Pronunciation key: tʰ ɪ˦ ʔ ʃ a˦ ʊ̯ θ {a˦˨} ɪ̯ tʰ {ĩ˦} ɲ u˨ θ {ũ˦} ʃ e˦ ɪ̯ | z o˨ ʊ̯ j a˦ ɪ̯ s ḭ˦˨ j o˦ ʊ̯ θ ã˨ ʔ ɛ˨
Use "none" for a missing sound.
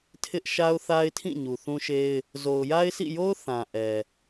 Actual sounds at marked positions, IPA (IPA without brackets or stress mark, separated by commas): a˦, ĩ˦˨, ũ˦